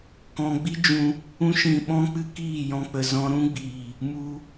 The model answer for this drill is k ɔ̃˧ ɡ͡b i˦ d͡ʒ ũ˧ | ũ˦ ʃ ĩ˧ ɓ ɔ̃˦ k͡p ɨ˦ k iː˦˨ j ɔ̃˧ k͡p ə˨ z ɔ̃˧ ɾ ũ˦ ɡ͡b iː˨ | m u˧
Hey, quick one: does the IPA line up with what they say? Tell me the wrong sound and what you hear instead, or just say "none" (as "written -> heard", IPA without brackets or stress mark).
none